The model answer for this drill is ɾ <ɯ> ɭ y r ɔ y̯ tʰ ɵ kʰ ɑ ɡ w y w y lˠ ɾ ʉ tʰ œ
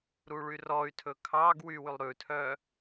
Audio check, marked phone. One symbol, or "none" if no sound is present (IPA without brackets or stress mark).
u